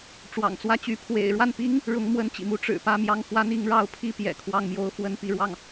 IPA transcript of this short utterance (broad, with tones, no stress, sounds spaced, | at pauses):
ʈ͡ʂ w ɑ̰˨˩ ŋ t͡s w ä˥˩ t͡ɕ y˧˥ pʰ w ḛ˨˩ ɪ̯ ɻ w a˥˩ n p i˥ ŋ | ɻ ʊ˧˥ ŋ m w ə˧˥ n t͡ɕ ḭ˨˩ m u˧˥ ʈ͡ʂ ɻ̩˨˩ p ä˥˧ m j ɑ˥˩ ŋ f w a˥ n i˧˥ ŋ ɻ ɑ˥˧ ʊ̯ pʰ i˥˩ p j ɛ̰˨˩ kʰ w ɑ˥˩ ŋ m j o˥ ʊ̯ f w ə˥ n p i˥˧ ɻ w ɑ˥˩ ŋ